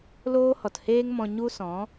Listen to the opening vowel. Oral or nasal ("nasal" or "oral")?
oral